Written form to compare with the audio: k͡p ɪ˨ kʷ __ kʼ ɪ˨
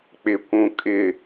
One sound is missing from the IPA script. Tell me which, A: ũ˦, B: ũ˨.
B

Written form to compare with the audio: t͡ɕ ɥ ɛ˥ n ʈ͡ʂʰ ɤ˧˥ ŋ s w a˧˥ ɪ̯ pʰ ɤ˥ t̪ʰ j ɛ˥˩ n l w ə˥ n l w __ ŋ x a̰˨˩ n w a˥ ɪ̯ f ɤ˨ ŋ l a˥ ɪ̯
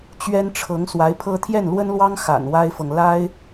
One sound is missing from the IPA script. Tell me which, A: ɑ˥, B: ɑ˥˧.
A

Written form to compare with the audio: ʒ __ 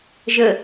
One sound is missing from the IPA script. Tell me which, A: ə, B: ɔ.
A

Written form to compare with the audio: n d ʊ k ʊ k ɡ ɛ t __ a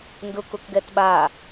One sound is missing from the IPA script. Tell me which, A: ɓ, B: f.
A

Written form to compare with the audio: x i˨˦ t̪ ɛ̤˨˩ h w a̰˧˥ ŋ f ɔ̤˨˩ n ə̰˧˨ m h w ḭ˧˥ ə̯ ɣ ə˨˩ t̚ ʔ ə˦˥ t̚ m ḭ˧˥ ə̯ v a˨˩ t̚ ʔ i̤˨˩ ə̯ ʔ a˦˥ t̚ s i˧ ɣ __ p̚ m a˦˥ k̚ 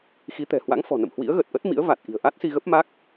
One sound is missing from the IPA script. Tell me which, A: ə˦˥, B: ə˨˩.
A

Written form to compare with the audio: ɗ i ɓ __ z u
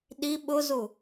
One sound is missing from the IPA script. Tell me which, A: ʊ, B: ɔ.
A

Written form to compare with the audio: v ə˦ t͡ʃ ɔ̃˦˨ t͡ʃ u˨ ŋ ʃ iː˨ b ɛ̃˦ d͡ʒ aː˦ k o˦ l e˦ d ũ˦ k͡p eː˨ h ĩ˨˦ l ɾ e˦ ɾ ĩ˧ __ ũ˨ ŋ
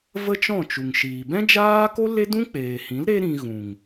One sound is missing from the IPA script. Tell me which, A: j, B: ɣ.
B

